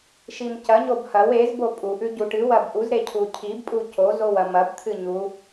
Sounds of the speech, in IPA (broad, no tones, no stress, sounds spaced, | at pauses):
ʃ i m c ɐ ɲ o b h ɐ w e z b o pʼ u ʔ ʉ ɟ u ʈ ɨ w ɐ b ʔ u z ɾ e cʰ u cʰ i b pʼ u c o z o w ɐ m ɐ b t̪ʰ ɨ ɲ u